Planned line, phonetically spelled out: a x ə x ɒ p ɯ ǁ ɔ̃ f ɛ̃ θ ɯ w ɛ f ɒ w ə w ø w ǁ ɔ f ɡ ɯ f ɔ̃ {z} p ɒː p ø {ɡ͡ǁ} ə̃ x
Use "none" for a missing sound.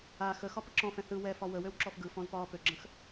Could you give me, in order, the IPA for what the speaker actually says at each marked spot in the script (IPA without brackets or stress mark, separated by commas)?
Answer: z, ɡ͡ǁ